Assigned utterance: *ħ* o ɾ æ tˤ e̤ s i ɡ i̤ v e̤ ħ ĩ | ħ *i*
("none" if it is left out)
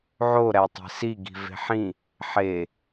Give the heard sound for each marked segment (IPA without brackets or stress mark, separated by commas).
ʕ, e